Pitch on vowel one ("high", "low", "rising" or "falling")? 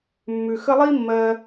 low